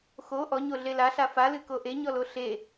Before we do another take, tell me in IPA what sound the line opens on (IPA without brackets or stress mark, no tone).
x